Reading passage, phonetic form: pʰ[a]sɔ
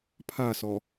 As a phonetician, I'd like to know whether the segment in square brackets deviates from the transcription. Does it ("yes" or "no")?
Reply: no